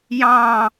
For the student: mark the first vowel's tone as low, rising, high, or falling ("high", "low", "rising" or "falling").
falling